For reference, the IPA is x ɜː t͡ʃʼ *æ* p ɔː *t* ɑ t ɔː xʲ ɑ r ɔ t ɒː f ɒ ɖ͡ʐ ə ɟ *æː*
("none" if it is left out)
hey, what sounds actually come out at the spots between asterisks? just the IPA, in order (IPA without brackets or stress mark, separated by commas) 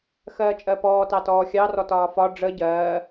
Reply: ɜ, t, ɜː